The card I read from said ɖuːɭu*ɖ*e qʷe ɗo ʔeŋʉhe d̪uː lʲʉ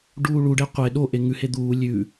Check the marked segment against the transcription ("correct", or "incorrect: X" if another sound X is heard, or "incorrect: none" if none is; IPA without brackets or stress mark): correct